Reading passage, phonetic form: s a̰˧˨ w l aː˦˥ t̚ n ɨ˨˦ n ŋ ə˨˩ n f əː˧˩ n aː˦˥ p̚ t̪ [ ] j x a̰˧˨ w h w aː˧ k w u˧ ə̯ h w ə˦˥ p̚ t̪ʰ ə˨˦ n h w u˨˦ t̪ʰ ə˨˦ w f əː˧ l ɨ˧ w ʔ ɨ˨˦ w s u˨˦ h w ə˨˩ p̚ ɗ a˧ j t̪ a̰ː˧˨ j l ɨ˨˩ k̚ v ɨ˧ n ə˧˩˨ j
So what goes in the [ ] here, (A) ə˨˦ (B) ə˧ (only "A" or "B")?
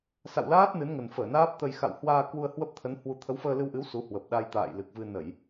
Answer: B